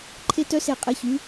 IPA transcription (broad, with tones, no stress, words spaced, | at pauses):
ǃʰe˧tœ˧ se˧˩ qʼe˩˧çy˩˧